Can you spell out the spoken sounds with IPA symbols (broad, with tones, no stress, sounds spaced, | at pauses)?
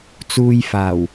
t͡s uː˧ j f aː˨˩ w